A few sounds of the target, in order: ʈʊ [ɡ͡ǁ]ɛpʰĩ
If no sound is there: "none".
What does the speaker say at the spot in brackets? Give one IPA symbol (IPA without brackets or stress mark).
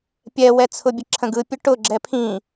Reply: ɡ͡ǁ